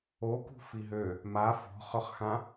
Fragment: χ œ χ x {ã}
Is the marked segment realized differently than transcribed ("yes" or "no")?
no